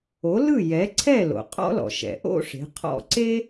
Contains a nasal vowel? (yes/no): no